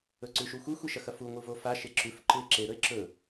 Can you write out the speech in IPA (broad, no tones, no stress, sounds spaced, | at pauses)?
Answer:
ɵ ǀ ʉ ʃ u xʷ i xʷ i ʃ ɐ x ɐ f u ŋʷ ɨ v o f a ʃ e ǁ ʉ f ǃ ɨ e̯ ǁ e ɾ ɵ e̯ ǁ ɵ